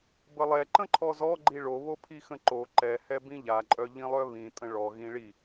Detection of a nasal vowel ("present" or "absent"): present